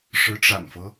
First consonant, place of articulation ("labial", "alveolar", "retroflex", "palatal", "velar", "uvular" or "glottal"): retroflex